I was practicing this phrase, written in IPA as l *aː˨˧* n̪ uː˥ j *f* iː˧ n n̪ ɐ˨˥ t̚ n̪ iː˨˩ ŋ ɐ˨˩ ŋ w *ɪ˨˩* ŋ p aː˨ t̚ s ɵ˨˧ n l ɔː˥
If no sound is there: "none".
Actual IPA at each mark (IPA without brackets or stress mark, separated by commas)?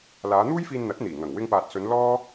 aː˨˧, f, ɪ˧